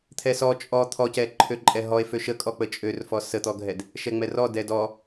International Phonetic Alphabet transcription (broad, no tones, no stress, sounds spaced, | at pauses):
t̪ʰ ɛ s ɔ t͡ʃʼ ɔ t̪ʰ ɔ c ɛ ǃʰ ø ǃʼ ɛ ɦ ɔ e̯ f ø ʃ ə kʼ ɔ k͡p ə t͡ʃʼ ø r f ɔ s ə t̪ ɔ ɡʱ ɛ d | ʃ ɛ ŋ͡m ɛ r ɔ d ɛ d ɔ